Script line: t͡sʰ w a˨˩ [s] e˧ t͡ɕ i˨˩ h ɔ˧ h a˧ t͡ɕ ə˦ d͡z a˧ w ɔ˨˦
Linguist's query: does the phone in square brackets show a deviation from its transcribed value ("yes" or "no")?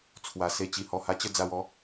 no